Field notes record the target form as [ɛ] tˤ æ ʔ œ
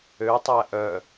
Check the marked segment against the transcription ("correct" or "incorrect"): incorrect